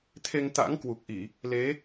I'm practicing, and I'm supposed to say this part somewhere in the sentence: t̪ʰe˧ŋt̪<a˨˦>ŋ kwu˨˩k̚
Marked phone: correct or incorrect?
incorrect: a̰˧˥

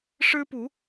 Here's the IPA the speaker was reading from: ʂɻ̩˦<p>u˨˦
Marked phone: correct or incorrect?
correct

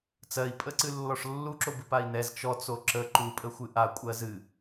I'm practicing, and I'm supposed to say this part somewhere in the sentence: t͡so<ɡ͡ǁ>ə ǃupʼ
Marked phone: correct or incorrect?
incorrect: ǁ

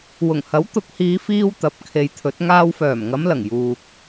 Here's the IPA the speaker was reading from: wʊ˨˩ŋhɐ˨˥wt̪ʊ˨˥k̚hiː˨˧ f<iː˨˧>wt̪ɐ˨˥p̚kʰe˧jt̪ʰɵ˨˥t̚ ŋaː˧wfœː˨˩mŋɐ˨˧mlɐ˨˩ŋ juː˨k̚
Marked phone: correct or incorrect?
incorrect: iː˥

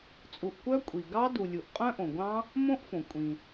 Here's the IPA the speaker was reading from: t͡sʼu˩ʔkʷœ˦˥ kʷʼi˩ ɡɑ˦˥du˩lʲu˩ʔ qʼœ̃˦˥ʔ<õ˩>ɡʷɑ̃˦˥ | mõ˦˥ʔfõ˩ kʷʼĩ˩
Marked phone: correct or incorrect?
correct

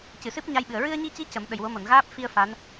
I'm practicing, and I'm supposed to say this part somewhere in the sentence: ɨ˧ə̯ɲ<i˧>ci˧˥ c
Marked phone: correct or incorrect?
correct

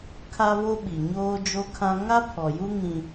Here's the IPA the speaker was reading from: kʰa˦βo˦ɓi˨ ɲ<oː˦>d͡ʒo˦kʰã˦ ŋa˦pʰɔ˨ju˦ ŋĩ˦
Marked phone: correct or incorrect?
correct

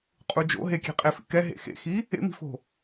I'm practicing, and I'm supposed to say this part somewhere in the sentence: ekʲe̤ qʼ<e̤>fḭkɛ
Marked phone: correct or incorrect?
incorrect: e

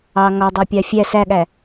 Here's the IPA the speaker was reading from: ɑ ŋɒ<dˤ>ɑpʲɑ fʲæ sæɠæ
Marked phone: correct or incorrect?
correct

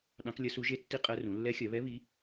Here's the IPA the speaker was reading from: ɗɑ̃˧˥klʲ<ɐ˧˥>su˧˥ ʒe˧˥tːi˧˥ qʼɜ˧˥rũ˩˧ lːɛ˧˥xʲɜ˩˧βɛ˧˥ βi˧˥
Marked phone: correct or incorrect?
correct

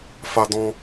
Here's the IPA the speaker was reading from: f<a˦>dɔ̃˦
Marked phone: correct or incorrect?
correct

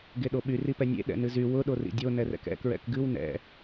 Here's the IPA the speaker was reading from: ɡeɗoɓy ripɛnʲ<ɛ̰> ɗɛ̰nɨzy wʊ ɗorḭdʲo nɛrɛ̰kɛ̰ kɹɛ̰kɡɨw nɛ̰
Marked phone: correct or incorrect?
incorrect: ḛ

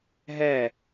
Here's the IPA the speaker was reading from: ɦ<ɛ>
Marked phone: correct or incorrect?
correct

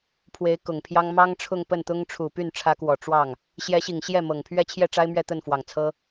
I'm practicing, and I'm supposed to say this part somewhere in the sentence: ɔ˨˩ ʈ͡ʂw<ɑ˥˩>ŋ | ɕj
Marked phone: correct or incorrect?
correct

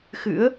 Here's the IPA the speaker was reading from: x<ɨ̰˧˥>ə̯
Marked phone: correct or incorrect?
correct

